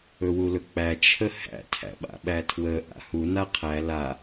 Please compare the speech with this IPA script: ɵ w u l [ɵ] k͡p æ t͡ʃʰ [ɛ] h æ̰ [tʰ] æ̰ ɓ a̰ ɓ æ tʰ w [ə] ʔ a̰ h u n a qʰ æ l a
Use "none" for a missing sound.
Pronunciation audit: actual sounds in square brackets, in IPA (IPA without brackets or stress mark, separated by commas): ɵ, ə, tʰ, ə